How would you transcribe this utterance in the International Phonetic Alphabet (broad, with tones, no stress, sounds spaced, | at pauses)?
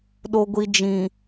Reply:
ɗ o˨ ɡʷ i˨ d͡ʒ ĩ˨